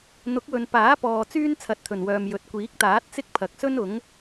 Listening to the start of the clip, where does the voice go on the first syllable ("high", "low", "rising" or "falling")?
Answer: rising